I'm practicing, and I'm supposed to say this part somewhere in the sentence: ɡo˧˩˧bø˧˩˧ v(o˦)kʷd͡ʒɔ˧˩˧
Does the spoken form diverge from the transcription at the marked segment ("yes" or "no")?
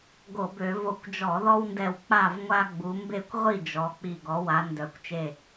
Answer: yes